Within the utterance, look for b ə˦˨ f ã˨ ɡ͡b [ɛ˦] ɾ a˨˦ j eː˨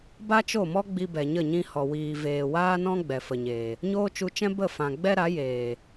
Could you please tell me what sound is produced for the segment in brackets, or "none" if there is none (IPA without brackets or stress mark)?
ɛ˦